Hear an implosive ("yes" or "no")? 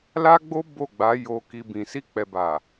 no